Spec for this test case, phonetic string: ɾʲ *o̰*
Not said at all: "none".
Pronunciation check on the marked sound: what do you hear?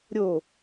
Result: o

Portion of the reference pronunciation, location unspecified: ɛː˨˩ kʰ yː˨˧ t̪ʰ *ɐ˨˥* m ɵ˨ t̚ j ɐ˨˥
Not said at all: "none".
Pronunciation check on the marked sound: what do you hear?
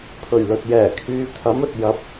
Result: ɐ˨˥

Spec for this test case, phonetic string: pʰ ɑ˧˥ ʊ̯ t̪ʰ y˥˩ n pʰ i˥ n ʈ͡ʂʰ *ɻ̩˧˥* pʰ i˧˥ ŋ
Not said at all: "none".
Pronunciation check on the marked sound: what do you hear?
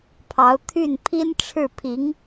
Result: ɻ̩˥˩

